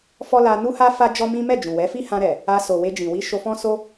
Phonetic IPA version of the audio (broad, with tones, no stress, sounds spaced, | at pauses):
f ɔ˦ l a˧ n u˦ h a˦ f a˦ d͡ʒ ɔ˦ m ĩ˦ m ɛ˦˨ d͡ʒ ũ˨ w ɛ˨˦ f i˦ h ã˧ ɾ ɛ˨ | a˧ s o˨ w e˧ d͡ʒ ĩ˨ w i˧ ʃ o˧ f ɔ̃˦ s o˦